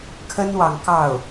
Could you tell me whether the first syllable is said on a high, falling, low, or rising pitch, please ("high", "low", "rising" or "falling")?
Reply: high